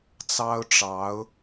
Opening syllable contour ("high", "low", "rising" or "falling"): high